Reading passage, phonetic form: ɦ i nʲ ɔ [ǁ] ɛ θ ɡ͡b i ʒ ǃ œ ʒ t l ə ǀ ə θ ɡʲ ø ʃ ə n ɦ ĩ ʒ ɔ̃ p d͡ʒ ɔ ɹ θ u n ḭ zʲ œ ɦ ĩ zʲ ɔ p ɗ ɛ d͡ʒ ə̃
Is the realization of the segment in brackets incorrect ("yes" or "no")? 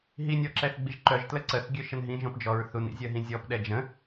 no